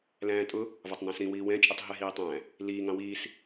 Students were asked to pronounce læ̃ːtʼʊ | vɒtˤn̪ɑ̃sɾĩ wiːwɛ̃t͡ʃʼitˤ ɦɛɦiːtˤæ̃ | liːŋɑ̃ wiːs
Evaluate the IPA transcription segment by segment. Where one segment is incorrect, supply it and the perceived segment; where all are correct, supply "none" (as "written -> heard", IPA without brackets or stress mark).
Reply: none